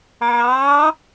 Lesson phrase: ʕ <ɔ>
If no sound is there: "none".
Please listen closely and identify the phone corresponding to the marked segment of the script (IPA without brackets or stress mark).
ɑ